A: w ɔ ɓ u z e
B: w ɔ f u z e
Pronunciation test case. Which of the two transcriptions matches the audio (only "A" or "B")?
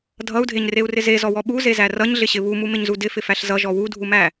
A